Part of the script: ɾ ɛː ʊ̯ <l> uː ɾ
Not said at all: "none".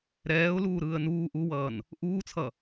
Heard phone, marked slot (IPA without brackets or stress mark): l